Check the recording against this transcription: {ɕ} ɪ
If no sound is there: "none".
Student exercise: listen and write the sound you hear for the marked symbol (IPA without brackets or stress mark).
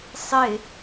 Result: sˤ